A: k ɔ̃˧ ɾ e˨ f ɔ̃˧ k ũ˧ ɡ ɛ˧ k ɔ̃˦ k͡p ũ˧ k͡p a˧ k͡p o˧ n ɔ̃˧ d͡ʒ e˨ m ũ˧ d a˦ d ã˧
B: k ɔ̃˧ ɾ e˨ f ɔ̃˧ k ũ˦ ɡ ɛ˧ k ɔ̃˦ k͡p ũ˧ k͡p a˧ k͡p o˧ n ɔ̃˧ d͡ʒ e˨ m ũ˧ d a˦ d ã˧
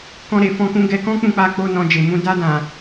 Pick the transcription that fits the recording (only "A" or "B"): A